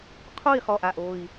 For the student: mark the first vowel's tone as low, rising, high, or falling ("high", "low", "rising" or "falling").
falling